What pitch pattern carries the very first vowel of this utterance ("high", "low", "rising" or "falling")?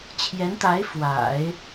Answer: rising